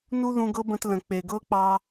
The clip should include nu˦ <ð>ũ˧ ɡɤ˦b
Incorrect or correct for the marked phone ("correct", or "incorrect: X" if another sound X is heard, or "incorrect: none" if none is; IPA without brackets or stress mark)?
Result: correct